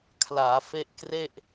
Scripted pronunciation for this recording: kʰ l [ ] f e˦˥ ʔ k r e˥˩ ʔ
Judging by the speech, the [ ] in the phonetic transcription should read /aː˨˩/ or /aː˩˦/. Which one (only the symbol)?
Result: aː˩˦